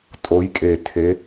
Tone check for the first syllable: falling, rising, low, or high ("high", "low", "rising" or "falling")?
rising